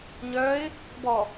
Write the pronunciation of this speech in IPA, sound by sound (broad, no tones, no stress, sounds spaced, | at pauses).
ɲ œ ɪ̯ | b ɔ